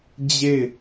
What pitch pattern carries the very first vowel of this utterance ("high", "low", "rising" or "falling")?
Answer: falling